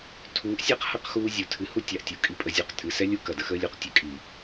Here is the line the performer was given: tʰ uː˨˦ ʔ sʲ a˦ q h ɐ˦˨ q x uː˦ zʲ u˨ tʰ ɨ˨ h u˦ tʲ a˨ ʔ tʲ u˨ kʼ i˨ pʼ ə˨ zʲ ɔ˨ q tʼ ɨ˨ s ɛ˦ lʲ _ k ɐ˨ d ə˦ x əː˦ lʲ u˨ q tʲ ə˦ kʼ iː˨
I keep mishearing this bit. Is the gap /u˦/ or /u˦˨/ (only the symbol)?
u˦